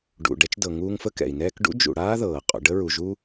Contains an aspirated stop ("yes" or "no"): no